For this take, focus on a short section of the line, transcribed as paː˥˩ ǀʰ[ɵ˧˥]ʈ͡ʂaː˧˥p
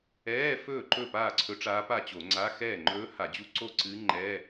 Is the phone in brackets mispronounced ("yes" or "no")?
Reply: no